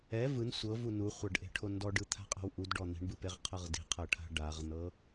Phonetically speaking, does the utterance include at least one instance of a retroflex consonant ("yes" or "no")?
yes